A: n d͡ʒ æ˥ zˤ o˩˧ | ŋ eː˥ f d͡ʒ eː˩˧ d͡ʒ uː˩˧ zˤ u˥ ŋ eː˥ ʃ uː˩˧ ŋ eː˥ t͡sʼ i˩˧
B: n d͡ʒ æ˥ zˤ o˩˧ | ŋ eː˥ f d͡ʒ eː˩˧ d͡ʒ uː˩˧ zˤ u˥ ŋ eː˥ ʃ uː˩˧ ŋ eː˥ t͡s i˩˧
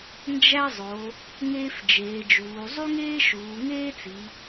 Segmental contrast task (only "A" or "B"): B